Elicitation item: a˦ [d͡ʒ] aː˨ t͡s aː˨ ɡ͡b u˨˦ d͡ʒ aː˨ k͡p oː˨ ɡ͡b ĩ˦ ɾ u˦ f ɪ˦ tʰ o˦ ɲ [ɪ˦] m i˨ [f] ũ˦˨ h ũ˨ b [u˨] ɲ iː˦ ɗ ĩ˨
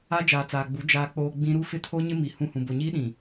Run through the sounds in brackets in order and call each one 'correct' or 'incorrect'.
correct, correct, incorrect: h, incorrect: o˨

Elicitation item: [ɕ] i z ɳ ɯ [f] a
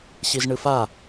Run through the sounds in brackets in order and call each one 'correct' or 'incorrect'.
correct, correct

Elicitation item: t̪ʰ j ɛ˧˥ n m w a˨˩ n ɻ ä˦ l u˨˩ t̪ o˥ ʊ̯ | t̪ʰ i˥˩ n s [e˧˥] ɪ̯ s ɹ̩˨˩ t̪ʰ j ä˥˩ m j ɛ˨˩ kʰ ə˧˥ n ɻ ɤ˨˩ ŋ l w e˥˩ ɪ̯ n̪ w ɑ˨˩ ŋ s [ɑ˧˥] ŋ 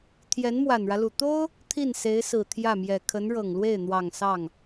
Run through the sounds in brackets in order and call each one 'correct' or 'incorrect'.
correct, incorrect: ɑ˥˩

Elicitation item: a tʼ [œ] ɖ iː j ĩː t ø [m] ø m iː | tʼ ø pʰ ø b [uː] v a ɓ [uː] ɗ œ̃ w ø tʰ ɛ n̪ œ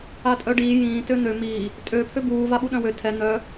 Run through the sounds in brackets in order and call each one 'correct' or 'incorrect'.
correct, incorrect: n̪, correct, incorrect: u

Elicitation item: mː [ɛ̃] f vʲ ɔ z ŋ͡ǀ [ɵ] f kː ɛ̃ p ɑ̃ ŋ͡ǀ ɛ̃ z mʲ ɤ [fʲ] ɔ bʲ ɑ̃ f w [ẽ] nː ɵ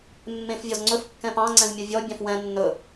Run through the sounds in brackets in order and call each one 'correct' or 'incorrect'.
incorrect: ẽ, correct, incorrect: vʲ, incorrect: ɛ̃

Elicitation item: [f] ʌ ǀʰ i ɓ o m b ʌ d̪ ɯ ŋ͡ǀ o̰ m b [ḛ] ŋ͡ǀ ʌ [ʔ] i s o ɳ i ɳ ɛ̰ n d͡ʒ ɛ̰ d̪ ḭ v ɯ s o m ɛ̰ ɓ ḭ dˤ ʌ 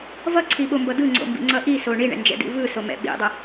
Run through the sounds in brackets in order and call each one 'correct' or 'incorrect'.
incorrect: v, incorrect: ḭ, correct

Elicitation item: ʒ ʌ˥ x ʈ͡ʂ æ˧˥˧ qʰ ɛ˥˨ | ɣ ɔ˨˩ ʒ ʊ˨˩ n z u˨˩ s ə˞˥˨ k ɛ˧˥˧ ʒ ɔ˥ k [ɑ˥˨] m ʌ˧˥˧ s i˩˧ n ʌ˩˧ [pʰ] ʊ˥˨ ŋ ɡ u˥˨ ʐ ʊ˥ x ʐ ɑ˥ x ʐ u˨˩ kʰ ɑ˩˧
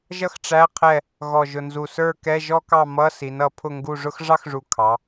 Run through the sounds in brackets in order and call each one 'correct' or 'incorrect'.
correct, correct

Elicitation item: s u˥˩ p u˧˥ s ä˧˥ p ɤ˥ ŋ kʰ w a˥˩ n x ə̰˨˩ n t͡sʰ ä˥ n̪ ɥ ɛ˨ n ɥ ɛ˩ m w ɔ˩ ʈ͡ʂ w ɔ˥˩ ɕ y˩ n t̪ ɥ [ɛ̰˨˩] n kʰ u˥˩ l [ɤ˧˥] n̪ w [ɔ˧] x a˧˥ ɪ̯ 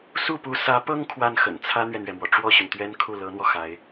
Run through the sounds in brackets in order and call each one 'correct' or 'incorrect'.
incorrect: ɛ˥, correct, correct

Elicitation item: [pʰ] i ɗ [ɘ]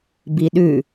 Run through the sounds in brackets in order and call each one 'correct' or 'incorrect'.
incorrect: b, incorrect: ʉ

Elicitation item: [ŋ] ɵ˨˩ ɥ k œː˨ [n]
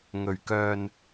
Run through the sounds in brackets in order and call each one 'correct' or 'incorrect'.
correct, correct

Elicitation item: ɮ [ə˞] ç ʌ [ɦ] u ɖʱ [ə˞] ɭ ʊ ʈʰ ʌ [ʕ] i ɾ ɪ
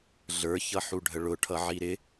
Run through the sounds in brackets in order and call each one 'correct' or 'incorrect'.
correct, incorrect: ħ, incorrect: ə, correct

